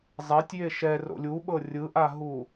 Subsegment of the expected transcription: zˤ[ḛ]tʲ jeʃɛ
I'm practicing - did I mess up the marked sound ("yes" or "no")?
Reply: yes